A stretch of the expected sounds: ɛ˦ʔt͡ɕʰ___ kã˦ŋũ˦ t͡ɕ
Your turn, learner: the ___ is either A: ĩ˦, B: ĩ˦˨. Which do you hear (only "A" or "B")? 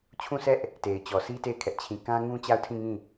B